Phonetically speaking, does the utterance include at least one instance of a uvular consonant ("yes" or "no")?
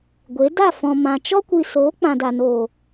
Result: no